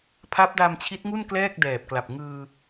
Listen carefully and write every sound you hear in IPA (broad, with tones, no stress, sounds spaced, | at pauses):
pʰ a˦˥ p̚ d a˧ m t͡ɕʰ i˦˥ t̚ ŋ u˥˩ n k l ɛː˥˩ k̚ d ɛː˨˩ p̚ k l a˨˩ p̚ ŋ ɯː˧